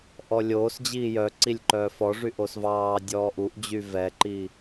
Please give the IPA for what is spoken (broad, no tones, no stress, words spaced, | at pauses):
ʔɔlʲoːsd͡ʑiː jœǀilʲ ǃœːfɔʐy ʔosvɑːdʲɔː ʔuʔd͡ʑy vɛǃi